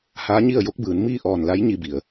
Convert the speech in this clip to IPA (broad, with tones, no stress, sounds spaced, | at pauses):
h aː˧˥ ɲ i˥˨ ə̯ j o˧˥ k̚ b ɯː˩˧ n m iː˥˨ ʔ ɔː˧˩ n l a˧˥ j ɲ i˥˨ b i˩ ə̯